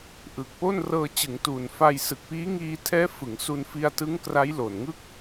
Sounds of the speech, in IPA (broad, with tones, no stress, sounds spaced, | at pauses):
ʔ ɯ˨˩ k̚ p o˥˩ n r ɤː˧ t͡ɕ ɯ˩˦ ŋ t uː˨˩ n f a˧ j s ɯ˨˩ k̚ p iː˦˥ ŋ iː˧ tʰ ɛː˦˥ f ɯ˩˦ ŋ s u˧ n f i˧ a̯ t ɯ˦˥ ŋ k r a˦˥ j l o˨˩ n ŋ ɯ˥˩ k̚